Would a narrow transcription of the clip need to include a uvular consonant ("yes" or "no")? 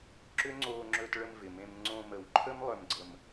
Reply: no